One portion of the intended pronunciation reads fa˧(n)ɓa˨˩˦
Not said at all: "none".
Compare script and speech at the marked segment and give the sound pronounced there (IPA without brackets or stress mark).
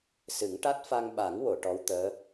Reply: ŋ